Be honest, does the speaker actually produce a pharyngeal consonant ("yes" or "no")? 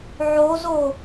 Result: yes